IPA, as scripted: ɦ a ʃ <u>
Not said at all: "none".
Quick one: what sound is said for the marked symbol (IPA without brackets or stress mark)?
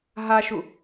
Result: u